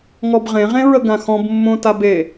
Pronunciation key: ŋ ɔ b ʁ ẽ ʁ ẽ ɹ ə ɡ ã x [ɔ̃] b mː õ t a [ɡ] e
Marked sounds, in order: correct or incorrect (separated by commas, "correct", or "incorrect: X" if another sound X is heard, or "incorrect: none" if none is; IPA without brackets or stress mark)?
correct, incorrect: b